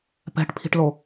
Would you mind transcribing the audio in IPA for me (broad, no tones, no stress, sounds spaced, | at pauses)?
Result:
p ɛ̤ ʈ pʰ i̤ ʈ l o